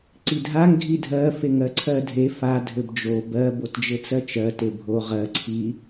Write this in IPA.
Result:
ǀ i dʱ a ŋ ɡʱ i dʱ ɜ f e ŋ ɜ ǀʰ ɜ dʱ e f a dʱ ɘ b d͡ʒ o b ɜ b o t d͡ʒ ɘ t͡s ɜ t͡ʃ ɜ t e bʱ o ʁ ɜ ǀʰ i

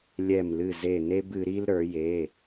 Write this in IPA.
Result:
lʲ ɛ˧˩ m l ɨ˧˩ z e˧˩ n e˦ b ɨ˩˧ ɾ i˦ l ɾ ə˞˩˧ j e˩˧˩

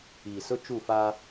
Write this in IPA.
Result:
iː˨ s ʊ˦ t͡ʃ u˦˨ f aː˦

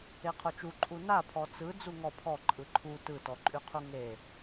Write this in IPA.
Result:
e qʰ o t͡ʃ u ǃʼ u n a pʰ ɔ t͡s ɯ d͡z u ŋ ɔ pʰ ɔ ǃʼ ɯ ǃʰ u t ɯ t ɔ ǃʼ y qʰ u ŋ e

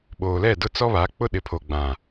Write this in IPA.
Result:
ɓ oː˨ l ɛ˦˨ d ʊ˦ t͡s ɔ˦ β a˨˦ k͡p ʊ˦ ɗ ɪ˨ pʰ o˨ ɡ͡b ã˨

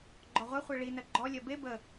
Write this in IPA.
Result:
ɡ͡ǃ ɔ ʁʷ ɛ χʷ ɛ ɭ i n ɜ ɡ͡ǃ ɔ lʲ ɜ b e b ə

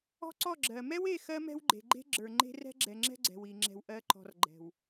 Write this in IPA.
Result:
ɔ̤˦ ǀ ɔ˦˨ ɡ͡ǁ ɜ˨ m ɛ˦ w e˦˨ x ɜ˦ m ɛ̤˦ w ɡ͡ǃ e̤˨ ɡ͡ǃ e̤˦ ɡ͡ǁ ə˞˨ ŋ͡ǃ e̤˦ r ɛ̤˦ ɡ͡ǁ ɛ˨ ŋ͡ǁ ɛ̤˦ ɡ͡ǀ ɛ̤˨ w i˨ ŋ͡ǁ ɛ̤˨ w ʔ ɜ˨˦ ǃ ɔ̤˨ r ɡ͡ǃ ɛ̤˨ w

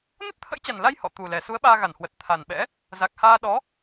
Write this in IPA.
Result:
n ə˦˥ t̚ t̪ʰ ə̰˧˥ j t͡ɕ a˨˩ n l a˧ j h ɔ̰˧˨ t̪ u˨˩ l ɛ˨˩ s u˨˦ ə̯ ɓ aː˧ ɣ a˧˩ n h w ə˨˩ t̚ t̪ʰ a˨˩ n ɓ ɛ̰˧˥ | z a˨˩ k̚ h aː˧ ɗ ɔ˨˦

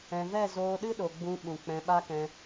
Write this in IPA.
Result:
ɛ̃˨ v ɛ˦˨ z oː˧ ɗ ɨ˦ ɗ o˨ ɡ͡b ũ˧ ɓ ũ˨ k͡p ɛ̃˧ ɓ a˦ k ɛ̃˧

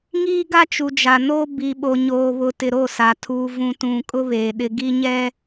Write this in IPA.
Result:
ŋ iː˦ ɡ a˦ t͡ʃ u˨ d͡ʒ a˨ n o˦ b i˨ ɓ o˨ ɲ oː˨ β ʊ˨ t ɪ˨ ɾ o˦˨ s a˨ tʰ uː˨ v ũ˨ t ũ˨ kʼ ʊ˦ β eː˨ ɗ ɪ˨ ɡ i˦ ɲ ɛ˦

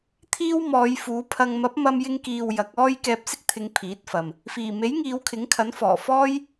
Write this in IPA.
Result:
t̪ʰ iː˥ w m ɔː˨˧ j f uː˨˥ pʰ ɐ˧ ŋ m ɐ˨˥ p̚ m ɐ˧ m j ɪ˧ ŋ k iː˨ w j ɐ˨˥ k̚ ɔː˥ j k ɛː˧ p̚ s ɪ˥ k̚ t̪ʰ ɪ˨˧ ŋ pʰ iː˨˥ t̚ f ɐ˨ m | f iː˨˩ m e˨˥ j ŋ iː˨˧ w kʰ ɪ˨˥ ŋ kʰ ɐ˨˥ n f ɔː˨˩ f ɔː˥ j

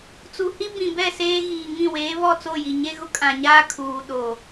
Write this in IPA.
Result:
t͡s u˨ h i˦ b ĩ˨ b ɛ˦˨ s eː˦ ɣ iː˨ ŋ ĩ˦˨ w eː˨˦ β ɔ˦˨ t͡s o˦˨ j i˨ ɲ e˦ ɣ ʊ˦ kʼ ã˨ ɲ aː˦ kʰ uː˨ ɗ o˨

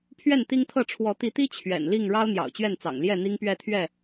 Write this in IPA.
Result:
pʰ ɥ ɛ˥˨ n t̪ i˦ ŋ t̪ʰ ɤ˥˨ ʈ͡ʂʰ w ɔ˨˦ t̪ i˨˦ t̪ i˦ t͡ɕʰ ɥ ɛ̰˨˩ n l i˥˨ ŋ ɻ ɑ˦ ʊ̯ n̪ j ɑ̰˨˩ ʊ̯ t͡ɕ ɥ ɛ˥˨ n t͡s ɑ̰˨˩ ŋ l j ɛ˥˨ n̪ i˦ ŋ p ɥ ɛ˥˨ t̪ʰ ɥ ɛ˥˨

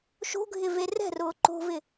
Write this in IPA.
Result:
ʃ o̤ ɡʱ ɪ v e r ɛ̤ r ʊː ǃ o̤ v ɪ

